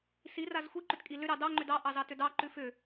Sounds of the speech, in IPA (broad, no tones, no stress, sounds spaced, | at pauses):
s i r a z xʷ i ǃ ʏ t kʼ i l ʏ ɾ ɑ d ɑ ŋ͡ǃ ʏ d ɑ ʔ ɑ z ɑ t ʏ d ɑ ǃ ʉ f ʏ